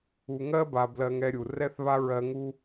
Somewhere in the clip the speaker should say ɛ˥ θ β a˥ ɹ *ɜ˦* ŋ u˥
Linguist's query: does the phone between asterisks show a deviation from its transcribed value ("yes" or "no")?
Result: no